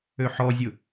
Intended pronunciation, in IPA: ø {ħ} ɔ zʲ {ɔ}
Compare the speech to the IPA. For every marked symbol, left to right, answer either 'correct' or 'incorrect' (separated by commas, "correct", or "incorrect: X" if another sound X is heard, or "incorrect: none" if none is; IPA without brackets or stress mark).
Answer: correct, incorrect: ʊ